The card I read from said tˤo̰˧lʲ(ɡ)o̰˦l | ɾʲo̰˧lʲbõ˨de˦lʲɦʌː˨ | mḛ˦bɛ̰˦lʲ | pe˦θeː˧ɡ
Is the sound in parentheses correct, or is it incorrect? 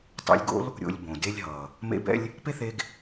correct